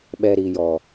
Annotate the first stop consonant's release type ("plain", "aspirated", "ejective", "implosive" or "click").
implosive